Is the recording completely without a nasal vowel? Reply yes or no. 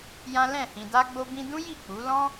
no